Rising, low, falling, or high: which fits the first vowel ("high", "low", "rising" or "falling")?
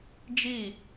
falling